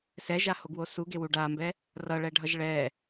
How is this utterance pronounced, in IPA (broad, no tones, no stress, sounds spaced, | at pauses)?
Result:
s ɛ ʒ a h o ɡ w o s u ɡ e w u ɖ a m b ɛ | r ʌ ɭ ɛ ɖʱ ʌ ʒ ɭ ɛ